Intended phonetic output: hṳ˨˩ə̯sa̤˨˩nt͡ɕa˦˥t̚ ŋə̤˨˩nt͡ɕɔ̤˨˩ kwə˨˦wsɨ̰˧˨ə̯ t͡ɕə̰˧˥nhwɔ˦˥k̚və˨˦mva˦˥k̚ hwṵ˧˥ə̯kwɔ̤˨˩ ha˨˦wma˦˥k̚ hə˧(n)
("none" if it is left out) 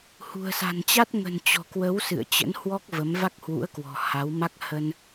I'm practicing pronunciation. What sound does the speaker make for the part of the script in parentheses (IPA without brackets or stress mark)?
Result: n